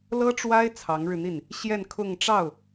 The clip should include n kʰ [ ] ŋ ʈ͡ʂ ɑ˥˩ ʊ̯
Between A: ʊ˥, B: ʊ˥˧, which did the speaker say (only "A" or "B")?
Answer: B